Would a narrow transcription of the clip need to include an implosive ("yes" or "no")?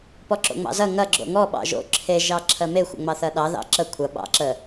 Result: yes